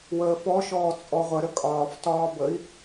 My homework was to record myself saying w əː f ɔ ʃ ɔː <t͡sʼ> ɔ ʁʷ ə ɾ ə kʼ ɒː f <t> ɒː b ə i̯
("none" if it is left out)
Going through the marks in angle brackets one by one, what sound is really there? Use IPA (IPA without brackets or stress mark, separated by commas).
t͡sʼ, t